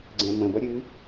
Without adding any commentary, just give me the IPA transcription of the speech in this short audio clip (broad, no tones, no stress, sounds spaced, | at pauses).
ɡ͡ǀ ɛ̃ m ə̃ b ʌ ɾʲ ɨ